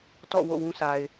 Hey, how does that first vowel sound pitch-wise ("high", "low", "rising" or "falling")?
falling